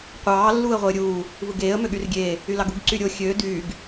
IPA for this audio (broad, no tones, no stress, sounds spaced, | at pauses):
qʷ ɑː lː uː ə̯ ʁʷ e ə̯ ɾʲ uː | v ɯ ɡ eː ə̯ m ø ɠ y r ɡʲ eː | y l ɑ ɡ u ɡ ǀ y ɾʲ o xʲ ø d yː ɡ